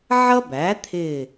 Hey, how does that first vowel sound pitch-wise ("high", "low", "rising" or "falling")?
high